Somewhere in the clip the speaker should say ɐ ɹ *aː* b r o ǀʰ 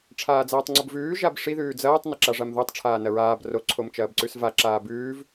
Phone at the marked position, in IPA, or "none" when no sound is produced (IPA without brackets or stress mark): aː